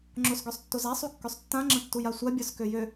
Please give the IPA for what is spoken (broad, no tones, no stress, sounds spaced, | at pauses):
ŋ͡ǁ o s ɡ ø sˤ tː o z a sˤ u kː ø sˤ tː ã ŋ͡ǁ ə̃ tː u j a sʷ a bʲ œ s k ø j ø